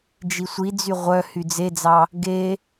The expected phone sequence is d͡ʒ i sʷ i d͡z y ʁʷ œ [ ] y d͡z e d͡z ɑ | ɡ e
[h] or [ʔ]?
h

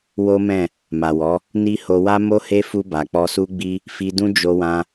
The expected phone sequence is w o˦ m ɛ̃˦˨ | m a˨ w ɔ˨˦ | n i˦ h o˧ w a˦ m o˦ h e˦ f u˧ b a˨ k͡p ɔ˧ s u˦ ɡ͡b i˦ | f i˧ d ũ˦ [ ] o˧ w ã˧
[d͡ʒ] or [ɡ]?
d͡ʒ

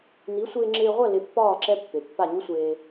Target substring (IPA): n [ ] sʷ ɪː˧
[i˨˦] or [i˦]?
i˨˦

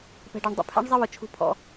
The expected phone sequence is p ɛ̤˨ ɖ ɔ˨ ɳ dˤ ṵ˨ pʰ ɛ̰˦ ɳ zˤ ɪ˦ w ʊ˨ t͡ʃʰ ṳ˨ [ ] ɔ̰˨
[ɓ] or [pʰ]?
pʰ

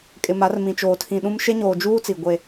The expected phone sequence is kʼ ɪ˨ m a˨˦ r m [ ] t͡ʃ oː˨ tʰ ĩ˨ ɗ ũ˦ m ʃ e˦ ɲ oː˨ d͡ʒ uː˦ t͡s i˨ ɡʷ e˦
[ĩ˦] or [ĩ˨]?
ĩ˨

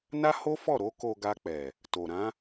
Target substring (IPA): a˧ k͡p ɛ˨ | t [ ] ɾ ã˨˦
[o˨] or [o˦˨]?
o˨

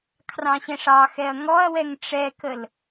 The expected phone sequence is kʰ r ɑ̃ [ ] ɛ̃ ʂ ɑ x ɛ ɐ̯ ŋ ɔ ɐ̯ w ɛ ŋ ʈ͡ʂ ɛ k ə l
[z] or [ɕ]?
ɕ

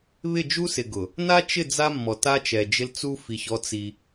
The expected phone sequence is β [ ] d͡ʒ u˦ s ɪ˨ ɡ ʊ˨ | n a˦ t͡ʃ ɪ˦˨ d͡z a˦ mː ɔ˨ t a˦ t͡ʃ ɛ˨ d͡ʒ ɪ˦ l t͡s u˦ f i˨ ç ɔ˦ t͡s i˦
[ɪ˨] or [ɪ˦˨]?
ɪ˦˨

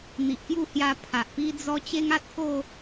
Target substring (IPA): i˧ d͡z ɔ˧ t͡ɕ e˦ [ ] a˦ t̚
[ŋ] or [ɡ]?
ŋ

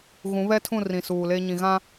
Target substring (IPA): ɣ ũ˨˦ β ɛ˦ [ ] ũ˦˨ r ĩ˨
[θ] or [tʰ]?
tʰ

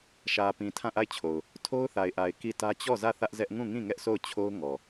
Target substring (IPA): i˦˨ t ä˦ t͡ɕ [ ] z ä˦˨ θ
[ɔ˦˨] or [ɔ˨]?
ɔ˦˨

